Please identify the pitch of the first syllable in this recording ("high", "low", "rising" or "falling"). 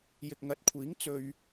low